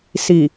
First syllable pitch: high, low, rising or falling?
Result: low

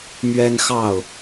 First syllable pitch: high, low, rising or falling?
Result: high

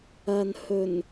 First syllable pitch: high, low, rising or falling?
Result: low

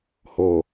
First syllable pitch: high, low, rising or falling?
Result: low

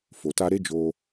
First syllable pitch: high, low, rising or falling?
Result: low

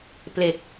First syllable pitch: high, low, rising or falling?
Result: low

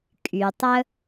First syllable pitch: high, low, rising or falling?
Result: low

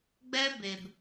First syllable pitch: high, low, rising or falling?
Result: high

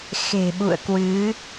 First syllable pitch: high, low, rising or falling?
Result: low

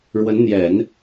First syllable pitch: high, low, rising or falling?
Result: rising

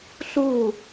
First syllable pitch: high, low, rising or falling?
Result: falling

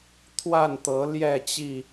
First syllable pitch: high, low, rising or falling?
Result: falling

